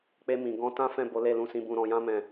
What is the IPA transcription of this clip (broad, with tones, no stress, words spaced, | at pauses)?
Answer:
k͡pe˧mĩ˨ɡɔ̃˧ tã˦ fɛ̃˦˨bo˨˦le˦˨ lũ˧sĩ˧bũ˧ ɾɔ̃˧jã˦ mɛ̃˦˨